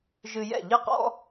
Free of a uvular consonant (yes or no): no